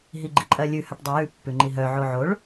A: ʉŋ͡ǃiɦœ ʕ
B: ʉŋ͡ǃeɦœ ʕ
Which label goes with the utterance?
A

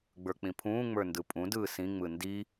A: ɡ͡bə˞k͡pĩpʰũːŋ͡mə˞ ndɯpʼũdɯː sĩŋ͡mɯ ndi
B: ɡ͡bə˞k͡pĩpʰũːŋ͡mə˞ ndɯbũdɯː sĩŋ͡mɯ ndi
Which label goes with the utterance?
A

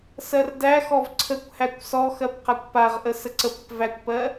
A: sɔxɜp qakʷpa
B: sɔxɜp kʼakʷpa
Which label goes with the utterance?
A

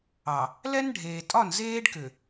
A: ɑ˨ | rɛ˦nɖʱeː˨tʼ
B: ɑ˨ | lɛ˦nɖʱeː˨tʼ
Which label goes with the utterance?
B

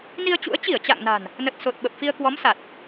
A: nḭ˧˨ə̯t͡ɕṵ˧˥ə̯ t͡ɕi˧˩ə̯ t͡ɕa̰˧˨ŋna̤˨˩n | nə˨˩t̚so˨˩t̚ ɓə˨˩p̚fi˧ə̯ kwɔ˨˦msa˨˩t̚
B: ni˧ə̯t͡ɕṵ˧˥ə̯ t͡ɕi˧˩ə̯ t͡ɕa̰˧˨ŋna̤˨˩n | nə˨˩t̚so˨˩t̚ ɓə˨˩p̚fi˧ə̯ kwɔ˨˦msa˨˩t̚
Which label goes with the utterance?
B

